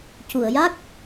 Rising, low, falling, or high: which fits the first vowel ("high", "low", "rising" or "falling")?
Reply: low